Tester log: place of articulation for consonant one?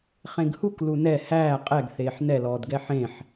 uvular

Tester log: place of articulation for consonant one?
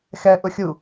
velar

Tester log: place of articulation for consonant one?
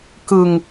velar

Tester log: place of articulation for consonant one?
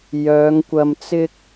palatal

